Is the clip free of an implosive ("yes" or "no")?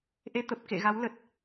yes